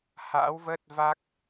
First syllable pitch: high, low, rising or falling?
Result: rising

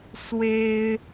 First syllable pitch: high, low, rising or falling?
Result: high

